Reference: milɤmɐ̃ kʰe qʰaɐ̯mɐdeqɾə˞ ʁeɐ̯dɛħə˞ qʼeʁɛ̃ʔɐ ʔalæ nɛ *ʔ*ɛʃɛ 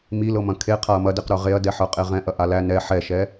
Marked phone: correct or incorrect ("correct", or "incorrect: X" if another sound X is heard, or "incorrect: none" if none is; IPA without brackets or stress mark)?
incorrect: ħ